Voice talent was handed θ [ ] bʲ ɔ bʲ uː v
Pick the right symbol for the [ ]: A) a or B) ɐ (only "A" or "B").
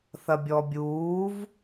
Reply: B